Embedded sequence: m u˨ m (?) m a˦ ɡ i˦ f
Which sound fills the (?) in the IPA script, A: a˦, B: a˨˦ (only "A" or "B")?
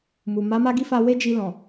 B